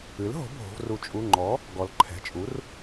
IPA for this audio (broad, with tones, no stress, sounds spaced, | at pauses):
ɨ˩˥ l ɦ o̤˩˥ bʱ o̤˩˧ v r u˩˧ t͡ʃʼ u˩˧˩ ŋ͡ǃ ɔ˩˥ | ɡ ɔ˩˧ l ǃʰ ɛ̤˩˧˩ t͡ʃʼ u˩˥ r